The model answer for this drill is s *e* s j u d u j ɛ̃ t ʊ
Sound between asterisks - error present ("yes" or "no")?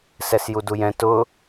yes